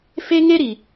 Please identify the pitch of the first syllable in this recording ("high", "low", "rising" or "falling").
high